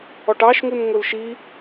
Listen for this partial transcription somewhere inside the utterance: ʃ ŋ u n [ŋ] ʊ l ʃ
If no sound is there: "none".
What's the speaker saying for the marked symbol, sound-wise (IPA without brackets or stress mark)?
ŋ